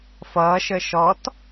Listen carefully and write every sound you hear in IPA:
f ʌː ʃ əː ʃ ɔ t

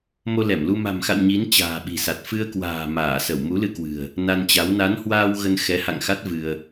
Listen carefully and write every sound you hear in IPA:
m o˧ l ɛ˧˩ m l u˧ m a̤˨˩ m x a̰˧˨ w ɲ i˨˦ n t͡ɕ a̤ː˨˩ ɓ i̤˨˩ s a˨˩ t̚ f ɨ˧ ə̯ k w a̤ː˨˩ m aː˧˩ s ə˧˩ w m u˨˦ l ɨ˧ k w ɨ̤˨˩ ə̯ | n a˧ n t͡ɕ a˨˦ w n a˨˦ n h w aː˧ w ɣ ə˧ n x ɛ˨˦ h a̰˧˨ ŋ x a˦˥ t̚ v ɨ˧ ə̯

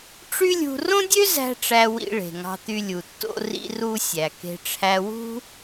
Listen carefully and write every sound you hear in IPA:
ʈ͡ʂ y˥ lʲ ṳ˧ r õ˥ dʲ ø˥ z æ̤˧ ʈ͡ʂ æ˧ w ḭ˧ ɭ e̤˩ ŋ ɑ̤˧ t̪ y˧ lʲ u˩ tː o̰˧ r ḭ˧ r u˧ sʲ æ˩ k e̤˧ ʈ͡ʂʰ æ˧ w ṳ˥

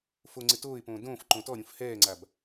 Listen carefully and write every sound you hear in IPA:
f o ŋ͡ǀ ɪ t oː ɪ̯ p õː d õː f ǃ õ t ɔ ɾʲ ũ f h ɛː ŋ͡ǀ a b

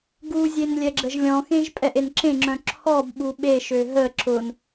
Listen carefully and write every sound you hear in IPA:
ɡ u zʲ e n lʲ ɛ ɡ͡ǁ ə ʒ lʲ ɔ̃ x ẽ ʒ pʼ ɛ ʔ e n ǁ ẽ ŋ͡ǁ œ̃ ǁʰ ɔ b ɓ u ɓ e ʃ ø ɦ ə ǁ ʊ n

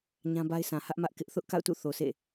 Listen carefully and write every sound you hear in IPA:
ɲ ã˦ b a˦ ɪ̯ s ã˨ h ä˦ ʔ m ä˦ ʔ k ɪ˦ ʔ θ ʊ˦ ʔ k a̰˦˨ ʊ̯ t ṵ˦˨ θ o˨ s ḛ˦˨

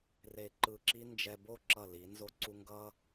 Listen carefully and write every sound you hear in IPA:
r e˧˩ ǃ ɯ˧˩ ǁ i˥ n d͡ʒ ɛ˧ b o˥˧ ǁ ʌ˧˩ l i˩˧ n z o˧ ǀ u˧ ŋ ɡ ʌ˥

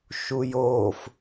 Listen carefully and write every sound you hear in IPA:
ʃ u j oː f

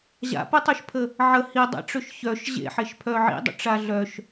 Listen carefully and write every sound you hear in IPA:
ʑ a̰ p ə tˤ œ ʃ pʰ ə | ʕ ə h i dˤ a̰ ʈ͡ʂ ø ʃ ç œ ʃ ʑ ḛ ħ e ʃ pʰ œ ʕ ḭ dˤ ə̰ ʈ͡ʂ a ɮ œ ʃ

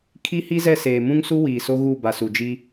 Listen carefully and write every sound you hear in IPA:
kʰ i˦ h i˦ z ɛ˦˨ s eː˨ m ũ˦ ŋ s u˦ w iː˨ s o˦ ɣ u˦˨ b a˨ s u˨ d͡ʒ i˦

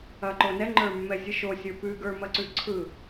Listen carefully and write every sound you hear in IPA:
ɐ ǃ o n ɛ ŋ͡ǃ ə˞ mː ɛ zʲ ɯ ʃ o sʲ ə˞ p ʉ ɡ ə˞ m ɐ ǀ ʉ ǀʰ ɯ

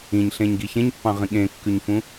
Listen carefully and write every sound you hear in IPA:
ĩ ɲ ɬ ẽ ɲ ɡ i ç ẽ ɲ pː ɑ̃ ʁ ĩ ɠ ẽ kː ʉ ɲ f ũ

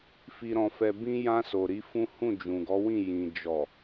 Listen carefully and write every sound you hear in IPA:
f i˨ ɾ ɔ̃˨ f ɛ˨ b ĩ˧ j ã˧ s o˨ ɾ i˨˦ f ũ˦ h ũ˦˨ d͡ʒ ũ˨ ɡ ɔ˨˦ w ĩ˦˨ j ĩ˨ d͡ʒ ɔ˨

